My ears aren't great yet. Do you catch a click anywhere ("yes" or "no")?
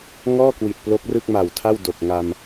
no